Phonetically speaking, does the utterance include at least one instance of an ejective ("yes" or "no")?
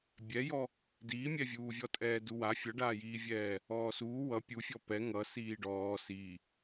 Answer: yes